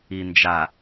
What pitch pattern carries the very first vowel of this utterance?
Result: low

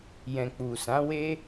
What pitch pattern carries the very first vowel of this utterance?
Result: low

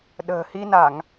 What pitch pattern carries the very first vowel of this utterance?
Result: low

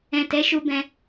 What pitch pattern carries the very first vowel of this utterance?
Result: low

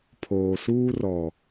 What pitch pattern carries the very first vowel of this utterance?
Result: low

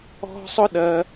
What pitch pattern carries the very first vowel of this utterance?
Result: high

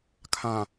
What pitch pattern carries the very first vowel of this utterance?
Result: low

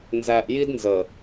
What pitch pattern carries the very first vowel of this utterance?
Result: low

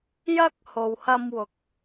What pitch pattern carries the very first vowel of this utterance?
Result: high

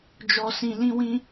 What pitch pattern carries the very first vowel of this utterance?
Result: low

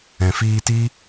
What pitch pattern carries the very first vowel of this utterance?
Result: low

